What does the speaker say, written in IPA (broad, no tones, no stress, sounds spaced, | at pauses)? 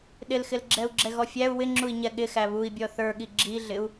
ɗ ɪ l x ɪ l ɡ͡ǁ ɛ u̯ ɡ͡ǁ ɛ ɣ ɔ fʲ æ u̯ w ɪ ŋ͡ǁ u i̯ ɲ ɛ ɠ ɪ x æ β u i̯ bʲ ɔ θ ə˞ ɠ i ɡ͡ǁ i ɮ ɪ u̯